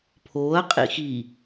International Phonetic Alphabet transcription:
pʰ oː ɐ̯ qʼ ḭ x i

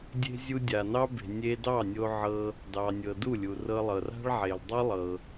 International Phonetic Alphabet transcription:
dʲ e̤˧ zʲ u˧ dʲ a˨ n ɑ˦ b e̤˨ nʲ e˧ d ɑ˦˨ nʲ o˧ ʕ ɤ˧ | d ɑ˨ nʲ ɤ˨ d u˦˨ lʲ u˨ r ɤ˧ lˠ ɤ˨ r a̤˦ ɭ ʕ e˨ l dˤ u˦ lˠ ɤ˧

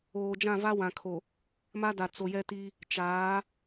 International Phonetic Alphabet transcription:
oː˨ d͡ʒ ã˦˨ v a˦ w ã˨ kʰ o˨ | m a˦ d a˨ t͡s o˨ j ɛ˦ t i˦ | t͡ʃ aː˨˦

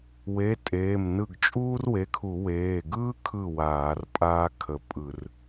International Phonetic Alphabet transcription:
w e˩˧˩ tʼ eː˩˧˩ m n ɯ˧˩ ɡ t͡ʃʼ uː˥ r w e˩˧˩ kʰ u˧˩˧ w eː˩˧˩ ɡ ɯː˥ kʰ ɯ˧˩ w aː˧˩˧ r pʼ aː˥ kʰ ə˧˩ pʼ ɯ˧˩˧ r

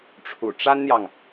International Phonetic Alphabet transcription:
ʈ͡ʂʰ ṵ˨˩ ʈ͡ʂ a˥ n n̪ j ɑ˨ ŋ

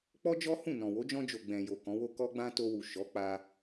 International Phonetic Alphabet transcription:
k͡p ɔ˦ d͡ʒ ɔ˦ h ũ˦˨ n ɔ̃˨ w o˨˦ d͡ʒ ɔ̃˧ d͡ʒ o˨ ɡ͡b ɛ̃˨ j o˨ k ɔ̃˨˦ w o˦ k ɔ˦ ɡ͡b ã˦ t o˧ w u˨ ʃ ɔ˨˦ k͡p a˧

